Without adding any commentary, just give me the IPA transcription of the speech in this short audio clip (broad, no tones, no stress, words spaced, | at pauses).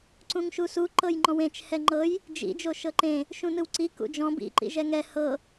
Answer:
ǀũŋʃusu ǃɤjŋ͡ǃɔ̃wẽt͡ʃ hɛŋ͡ǃɤj | d͡ʒḭ d͡ʒoʃɤǃẽ | ʃũnɯwǀi kṵd͡ʒɔ̃ bḭ ǃḭʒɛŋɛ hɤ